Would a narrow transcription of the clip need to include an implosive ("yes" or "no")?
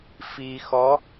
no